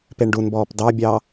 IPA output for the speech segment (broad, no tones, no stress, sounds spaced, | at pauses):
p e ɳ ɖ u n b ɔː p d ɑ bʲ ɑ